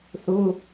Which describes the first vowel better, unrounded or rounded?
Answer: rounded